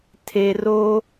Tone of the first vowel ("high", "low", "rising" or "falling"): low